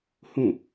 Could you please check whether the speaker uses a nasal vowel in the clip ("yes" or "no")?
yes